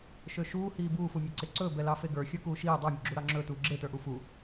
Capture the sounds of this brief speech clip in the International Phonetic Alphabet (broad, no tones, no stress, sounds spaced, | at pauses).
ʃ ø ʃ uː h iː b uː f u mʲ ɛ ǀ e ǀ ɵː b ɛ l ɑ f e ɡ ə˞ xʲ ə˞ k uː ʃ iː dˤ ə˞ mʲ ø ɡ͡ǁ uː ɾ ɑ ŋ͡ǁ ɵː t uː ɡ͡ǁ e t ə˞ ʔ u f u